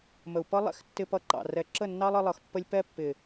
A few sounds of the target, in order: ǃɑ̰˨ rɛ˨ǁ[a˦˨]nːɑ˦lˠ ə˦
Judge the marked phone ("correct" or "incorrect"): incorrect